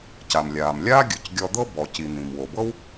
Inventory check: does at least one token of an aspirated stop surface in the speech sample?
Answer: no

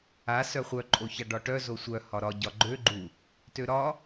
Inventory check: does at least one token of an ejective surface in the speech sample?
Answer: yes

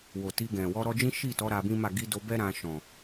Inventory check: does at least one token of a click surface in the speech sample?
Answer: no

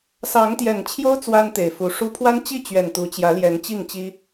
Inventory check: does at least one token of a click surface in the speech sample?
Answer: no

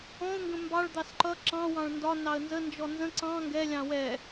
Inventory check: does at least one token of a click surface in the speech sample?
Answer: yes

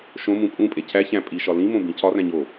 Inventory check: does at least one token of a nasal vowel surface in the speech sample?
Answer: yes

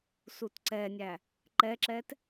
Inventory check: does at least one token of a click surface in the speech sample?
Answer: yes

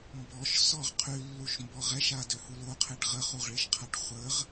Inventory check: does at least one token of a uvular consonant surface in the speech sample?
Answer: yes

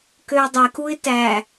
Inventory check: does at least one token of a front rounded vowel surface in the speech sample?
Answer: yes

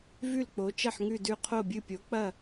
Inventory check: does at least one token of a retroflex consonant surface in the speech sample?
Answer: no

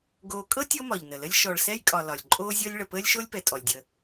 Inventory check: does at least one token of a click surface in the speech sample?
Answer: yes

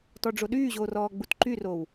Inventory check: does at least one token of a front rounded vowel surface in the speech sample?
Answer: yes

